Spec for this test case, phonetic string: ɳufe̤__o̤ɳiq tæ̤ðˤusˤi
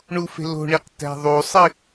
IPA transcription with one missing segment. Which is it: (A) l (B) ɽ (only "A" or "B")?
A